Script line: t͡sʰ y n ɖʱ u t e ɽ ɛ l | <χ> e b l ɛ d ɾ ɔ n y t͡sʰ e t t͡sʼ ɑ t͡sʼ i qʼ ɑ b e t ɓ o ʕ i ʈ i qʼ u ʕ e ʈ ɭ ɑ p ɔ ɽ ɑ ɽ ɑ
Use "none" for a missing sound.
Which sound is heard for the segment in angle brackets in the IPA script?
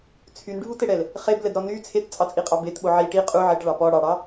χ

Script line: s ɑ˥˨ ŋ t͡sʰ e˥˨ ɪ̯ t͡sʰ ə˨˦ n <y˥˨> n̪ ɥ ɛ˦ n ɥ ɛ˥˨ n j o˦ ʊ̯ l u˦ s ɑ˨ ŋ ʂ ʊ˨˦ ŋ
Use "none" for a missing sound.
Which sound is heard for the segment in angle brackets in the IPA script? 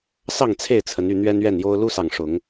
y˥˨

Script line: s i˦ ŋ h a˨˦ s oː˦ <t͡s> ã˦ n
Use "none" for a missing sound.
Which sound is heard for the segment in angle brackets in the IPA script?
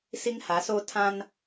tʰ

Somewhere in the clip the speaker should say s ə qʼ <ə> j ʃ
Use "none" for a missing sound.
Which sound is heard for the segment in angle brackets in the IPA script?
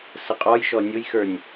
ɔ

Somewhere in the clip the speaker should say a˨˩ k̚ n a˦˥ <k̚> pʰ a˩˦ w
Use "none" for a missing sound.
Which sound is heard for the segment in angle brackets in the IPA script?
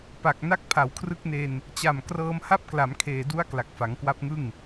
k̚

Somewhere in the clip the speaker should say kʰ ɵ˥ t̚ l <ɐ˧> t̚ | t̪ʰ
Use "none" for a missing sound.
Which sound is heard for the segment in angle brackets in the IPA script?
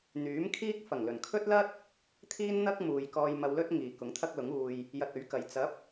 ɐ˥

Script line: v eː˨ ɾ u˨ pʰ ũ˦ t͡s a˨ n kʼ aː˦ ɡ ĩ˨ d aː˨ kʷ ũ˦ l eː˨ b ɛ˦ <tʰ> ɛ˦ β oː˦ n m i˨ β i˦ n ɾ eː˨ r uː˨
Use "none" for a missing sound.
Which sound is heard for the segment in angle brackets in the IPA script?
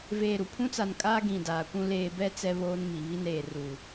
t͡s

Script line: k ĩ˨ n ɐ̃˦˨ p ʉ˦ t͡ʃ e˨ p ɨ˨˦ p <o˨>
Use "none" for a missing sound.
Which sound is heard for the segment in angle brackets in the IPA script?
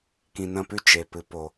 o˨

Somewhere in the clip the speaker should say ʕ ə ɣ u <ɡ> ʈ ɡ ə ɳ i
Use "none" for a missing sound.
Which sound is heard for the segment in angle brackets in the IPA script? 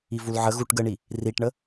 none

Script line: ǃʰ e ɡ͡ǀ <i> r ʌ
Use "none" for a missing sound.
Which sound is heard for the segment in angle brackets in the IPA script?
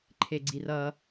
i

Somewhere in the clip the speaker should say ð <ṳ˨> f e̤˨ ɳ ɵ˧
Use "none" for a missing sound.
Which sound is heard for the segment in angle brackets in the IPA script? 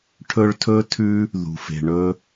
ṳ˨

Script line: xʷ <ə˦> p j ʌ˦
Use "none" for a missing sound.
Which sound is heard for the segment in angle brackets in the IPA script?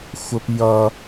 ə˦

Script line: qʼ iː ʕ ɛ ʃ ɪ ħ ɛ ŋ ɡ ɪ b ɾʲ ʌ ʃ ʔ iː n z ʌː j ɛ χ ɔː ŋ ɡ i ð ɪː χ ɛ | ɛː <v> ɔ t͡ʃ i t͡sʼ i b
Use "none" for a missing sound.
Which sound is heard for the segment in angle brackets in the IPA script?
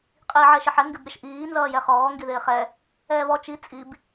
v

